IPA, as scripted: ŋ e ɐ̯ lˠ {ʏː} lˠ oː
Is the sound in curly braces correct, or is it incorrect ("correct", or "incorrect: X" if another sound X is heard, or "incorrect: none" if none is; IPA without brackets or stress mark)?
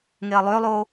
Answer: correct